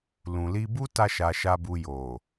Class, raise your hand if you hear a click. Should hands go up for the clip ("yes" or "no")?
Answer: no